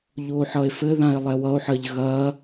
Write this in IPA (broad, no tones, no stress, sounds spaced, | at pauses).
ʎ oː ħ ʌ e̯ f ɘ ð ã e̯ lˠ ɛ w ʌ o̯ ħ ɐː ʎ ɣ ɐː